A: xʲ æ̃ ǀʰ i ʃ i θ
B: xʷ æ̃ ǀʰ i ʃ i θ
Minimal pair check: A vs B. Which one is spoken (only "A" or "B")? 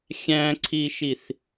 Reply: A